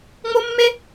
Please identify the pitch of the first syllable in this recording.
high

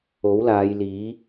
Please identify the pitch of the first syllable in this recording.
rising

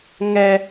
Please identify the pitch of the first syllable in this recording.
high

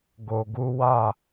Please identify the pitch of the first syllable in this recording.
low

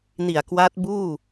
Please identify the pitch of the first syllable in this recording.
low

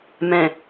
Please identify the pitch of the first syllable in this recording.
low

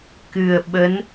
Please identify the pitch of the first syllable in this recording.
low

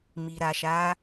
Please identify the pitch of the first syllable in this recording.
low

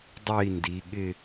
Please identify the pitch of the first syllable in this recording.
falling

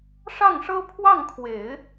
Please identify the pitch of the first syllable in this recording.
falling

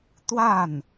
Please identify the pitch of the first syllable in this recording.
falling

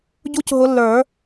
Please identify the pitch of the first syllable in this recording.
high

